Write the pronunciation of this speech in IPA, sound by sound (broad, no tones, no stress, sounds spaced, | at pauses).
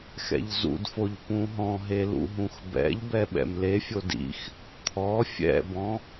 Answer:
x ɛ̰ ʎ z ṵ d f o ʎ p ũ ɦ ɔ̃ ɦ e l ṵ ɦ ũ x b ɛ̰ ʎ b ɛ ɓ ɛ̰ m l e fʲ o d ḭ x | t̪ʰ ɔ fʲ ɛ̰ b ɔ̃